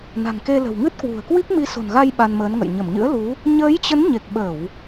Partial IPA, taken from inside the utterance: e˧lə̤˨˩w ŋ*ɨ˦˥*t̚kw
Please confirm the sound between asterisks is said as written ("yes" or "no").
yes